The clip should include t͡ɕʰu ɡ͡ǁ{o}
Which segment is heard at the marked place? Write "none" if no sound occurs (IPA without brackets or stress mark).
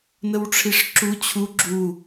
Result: u